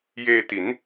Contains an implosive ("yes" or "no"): no